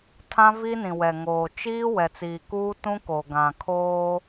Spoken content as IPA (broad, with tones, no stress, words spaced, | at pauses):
tʰã˦vi˦ nĩ˨wɛ˨ŋoː˨ t͡ʃiː˦ wɛ˨t͡siː˨ kuː˦tũ˦ ko˨ ɡã˨kʰoː˦